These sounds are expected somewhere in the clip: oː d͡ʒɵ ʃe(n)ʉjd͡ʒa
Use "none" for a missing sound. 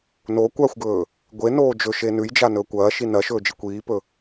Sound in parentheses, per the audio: n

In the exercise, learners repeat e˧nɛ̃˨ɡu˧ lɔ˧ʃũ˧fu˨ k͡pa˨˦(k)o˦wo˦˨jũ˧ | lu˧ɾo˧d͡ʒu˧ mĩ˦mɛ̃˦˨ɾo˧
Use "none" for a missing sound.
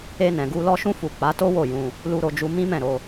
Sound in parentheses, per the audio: t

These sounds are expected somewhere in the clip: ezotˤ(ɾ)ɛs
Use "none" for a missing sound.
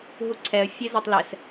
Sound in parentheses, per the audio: l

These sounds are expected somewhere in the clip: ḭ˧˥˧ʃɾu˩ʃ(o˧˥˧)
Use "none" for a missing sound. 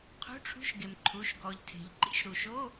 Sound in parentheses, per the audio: o˧˥˧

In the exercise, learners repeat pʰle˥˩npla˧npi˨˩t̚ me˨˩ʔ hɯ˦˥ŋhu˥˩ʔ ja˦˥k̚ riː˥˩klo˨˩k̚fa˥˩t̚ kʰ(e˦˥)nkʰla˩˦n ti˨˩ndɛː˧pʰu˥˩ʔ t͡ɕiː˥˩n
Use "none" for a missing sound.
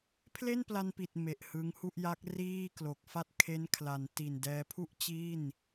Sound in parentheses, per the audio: e˦˥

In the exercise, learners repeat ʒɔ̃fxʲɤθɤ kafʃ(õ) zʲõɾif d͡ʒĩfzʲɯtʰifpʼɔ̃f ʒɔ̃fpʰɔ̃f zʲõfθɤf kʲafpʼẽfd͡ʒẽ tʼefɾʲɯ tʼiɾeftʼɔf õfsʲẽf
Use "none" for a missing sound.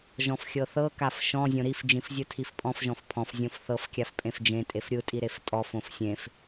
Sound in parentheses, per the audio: ɔ̃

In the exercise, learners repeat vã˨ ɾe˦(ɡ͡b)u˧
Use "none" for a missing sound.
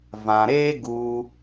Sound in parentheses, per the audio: ɡ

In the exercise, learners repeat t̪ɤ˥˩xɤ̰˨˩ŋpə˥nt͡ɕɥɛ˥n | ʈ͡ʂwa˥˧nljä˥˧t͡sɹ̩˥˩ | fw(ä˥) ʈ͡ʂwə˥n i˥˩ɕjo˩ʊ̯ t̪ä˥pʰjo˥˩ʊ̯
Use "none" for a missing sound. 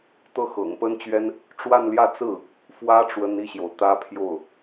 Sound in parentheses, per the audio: ä˥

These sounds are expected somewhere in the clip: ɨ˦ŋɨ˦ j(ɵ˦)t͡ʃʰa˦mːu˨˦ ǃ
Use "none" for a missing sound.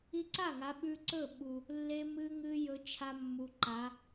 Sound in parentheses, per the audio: ɵ˦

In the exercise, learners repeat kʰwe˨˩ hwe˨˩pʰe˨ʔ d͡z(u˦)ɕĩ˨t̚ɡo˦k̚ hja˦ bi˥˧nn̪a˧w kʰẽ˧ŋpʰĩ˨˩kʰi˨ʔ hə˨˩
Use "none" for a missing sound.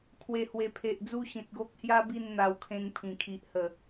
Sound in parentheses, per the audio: u˦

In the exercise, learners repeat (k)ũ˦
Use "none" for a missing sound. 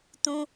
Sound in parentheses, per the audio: t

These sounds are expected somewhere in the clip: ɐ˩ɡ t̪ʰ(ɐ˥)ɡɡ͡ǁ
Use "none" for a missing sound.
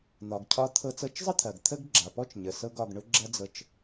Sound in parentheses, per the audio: ə˥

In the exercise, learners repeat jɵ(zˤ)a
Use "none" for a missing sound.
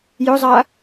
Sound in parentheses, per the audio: zˤ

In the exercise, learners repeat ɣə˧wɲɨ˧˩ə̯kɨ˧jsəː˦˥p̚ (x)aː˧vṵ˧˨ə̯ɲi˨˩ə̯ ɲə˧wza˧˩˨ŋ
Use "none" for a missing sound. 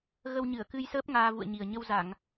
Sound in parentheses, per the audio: ŋ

